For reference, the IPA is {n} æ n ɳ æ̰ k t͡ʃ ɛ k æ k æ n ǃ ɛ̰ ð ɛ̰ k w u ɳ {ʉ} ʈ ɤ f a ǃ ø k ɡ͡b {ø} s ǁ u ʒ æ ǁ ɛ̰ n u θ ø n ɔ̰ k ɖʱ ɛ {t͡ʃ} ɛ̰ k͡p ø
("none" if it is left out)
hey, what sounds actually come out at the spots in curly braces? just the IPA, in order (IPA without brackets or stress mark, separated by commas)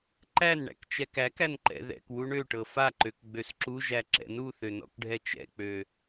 ǃ, ø, ø, t͡ʃ